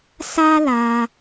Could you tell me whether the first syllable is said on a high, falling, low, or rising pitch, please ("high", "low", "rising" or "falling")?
high